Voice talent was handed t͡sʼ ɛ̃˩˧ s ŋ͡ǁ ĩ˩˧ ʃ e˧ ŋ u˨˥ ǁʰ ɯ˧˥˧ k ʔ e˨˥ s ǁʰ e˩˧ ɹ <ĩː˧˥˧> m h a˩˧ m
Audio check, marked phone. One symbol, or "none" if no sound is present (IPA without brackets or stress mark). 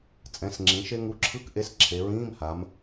ĩː˧˥˧